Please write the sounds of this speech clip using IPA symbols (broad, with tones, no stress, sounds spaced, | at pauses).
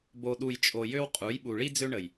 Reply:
b o˨ ɗ u˨ j t͡ʃʼ o˨ j ø˦ w qʼ u˨˦ j ɓ u˨ ɭ i˦ d͡z ø˦ ɳ ə˨ j